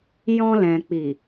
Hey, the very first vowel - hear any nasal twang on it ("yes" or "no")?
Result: yes